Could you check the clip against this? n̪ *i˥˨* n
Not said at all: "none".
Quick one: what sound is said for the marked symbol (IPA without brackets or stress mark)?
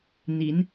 i˨˦